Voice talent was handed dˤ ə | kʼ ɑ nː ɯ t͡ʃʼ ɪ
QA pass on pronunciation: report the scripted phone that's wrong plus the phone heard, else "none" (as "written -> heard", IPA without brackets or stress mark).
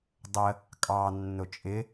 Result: ɯ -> ʊ